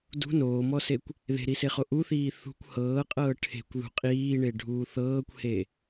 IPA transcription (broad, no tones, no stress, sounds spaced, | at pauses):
d ṳ n oː m ɔ s e kʷ | ð e̤ ɾ i s e χ o ʔ u θ iː θ ṳ kʷ h ɤː qʼ ɤː ʈʰ e̤ kʷ ð ṳ qʼ iː ɳ e ɖʱ uː θ ɤː kʷ h e